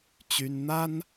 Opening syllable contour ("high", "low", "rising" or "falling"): high